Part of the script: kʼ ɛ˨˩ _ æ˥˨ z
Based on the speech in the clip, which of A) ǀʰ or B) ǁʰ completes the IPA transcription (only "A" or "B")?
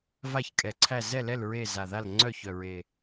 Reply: A